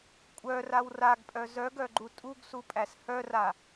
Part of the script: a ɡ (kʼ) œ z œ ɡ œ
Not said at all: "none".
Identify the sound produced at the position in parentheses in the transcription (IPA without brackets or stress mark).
pʼ